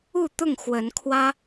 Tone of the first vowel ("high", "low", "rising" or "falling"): falling